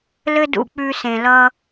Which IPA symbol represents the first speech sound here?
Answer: l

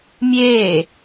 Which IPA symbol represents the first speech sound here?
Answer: mʲ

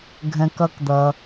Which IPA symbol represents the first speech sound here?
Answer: ɡʱ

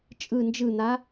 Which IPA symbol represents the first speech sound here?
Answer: t͡ʃʼ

